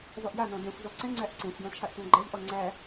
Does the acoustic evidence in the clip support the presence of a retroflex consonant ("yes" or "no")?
no